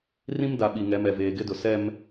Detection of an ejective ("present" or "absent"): absent